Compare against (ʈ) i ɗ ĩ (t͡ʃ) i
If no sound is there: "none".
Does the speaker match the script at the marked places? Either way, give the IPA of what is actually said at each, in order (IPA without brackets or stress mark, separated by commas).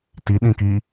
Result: t, k